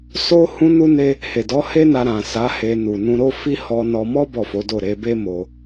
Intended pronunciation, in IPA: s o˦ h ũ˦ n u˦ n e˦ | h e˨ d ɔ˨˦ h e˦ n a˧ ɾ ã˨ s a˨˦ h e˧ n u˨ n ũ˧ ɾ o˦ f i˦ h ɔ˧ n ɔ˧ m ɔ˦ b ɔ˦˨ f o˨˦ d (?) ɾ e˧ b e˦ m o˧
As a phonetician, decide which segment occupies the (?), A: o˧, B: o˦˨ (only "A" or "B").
B